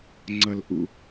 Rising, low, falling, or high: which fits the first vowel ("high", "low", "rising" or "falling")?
low